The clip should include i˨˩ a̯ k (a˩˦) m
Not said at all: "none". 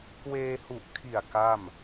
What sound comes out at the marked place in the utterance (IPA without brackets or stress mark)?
a˥˩